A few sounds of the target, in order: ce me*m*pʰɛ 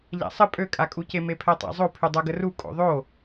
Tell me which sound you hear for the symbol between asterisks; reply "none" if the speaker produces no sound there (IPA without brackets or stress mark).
none